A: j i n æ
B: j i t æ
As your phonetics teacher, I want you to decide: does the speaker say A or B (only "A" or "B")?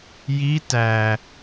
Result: B